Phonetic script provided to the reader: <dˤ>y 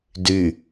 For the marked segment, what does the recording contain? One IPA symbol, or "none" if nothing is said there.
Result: d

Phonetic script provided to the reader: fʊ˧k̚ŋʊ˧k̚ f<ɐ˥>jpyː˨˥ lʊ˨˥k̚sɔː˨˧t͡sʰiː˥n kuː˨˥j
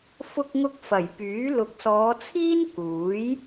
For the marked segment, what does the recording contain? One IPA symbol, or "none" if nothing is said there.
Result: ɐ˨˩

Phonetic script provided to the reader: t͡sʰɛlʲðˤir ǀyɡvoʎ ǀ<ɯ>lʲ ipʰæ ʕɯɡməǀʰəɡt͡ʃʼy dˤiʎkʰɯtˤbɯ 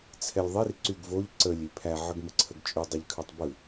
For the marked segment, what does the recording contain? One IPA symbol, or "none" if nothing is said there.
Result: ə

